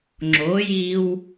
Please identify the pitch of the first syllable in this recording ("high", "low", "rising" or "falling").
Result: rising